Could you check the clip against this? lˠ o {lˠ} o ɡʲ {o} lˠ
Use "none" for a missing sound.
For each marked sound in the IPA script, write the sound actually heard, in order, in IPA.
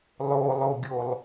lˠ, o

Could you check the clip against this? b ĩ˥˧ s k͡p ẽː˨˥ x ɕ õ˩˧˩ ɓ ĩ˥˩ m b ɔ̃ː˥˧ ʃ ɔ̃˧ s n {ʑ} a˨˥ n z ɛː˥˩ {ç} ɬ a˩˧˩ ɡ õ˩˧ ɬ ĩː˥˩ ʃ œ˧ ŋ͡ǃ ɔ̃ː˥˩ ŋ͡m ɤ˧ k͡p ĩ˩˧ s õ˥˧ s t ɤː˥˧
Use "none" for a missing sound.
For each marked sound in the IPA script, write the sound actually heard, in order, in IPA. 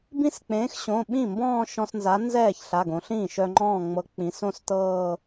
z, ç

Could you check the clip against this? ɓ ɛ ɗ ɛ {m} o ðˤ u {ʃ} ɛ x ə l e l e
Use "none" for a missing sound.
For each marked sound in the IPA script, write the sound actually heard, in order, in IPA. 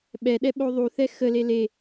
ɓ, θ

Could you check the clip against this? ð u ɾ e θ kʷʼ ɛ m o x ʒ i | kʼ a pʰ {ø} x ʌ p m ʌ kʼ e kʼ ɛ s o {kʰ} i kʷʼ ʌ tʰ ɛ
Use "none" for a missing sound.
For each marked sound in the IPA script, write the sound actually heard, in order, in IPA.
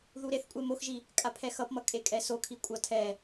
ɛ, kʰ

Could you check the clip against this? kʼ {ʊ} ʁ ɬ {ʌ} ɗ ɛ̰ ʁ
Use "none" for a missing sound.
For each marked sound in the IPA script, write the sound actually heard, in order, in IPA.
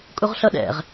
u, ʌ

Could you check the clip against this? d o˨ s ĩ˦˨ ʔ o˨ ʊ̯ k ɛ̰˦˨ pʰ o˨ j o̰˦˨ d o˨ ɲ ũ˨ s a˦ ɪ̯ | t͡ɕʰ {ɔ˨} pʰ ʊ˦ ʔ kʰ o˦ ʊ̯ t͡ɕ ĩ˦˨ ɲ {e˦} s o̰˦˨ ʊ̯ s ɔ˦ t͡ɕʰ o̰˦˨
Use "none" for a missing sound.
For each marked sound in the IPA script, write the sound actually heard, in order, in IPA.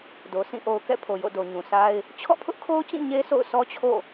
ɔ̰˦˨, e˦

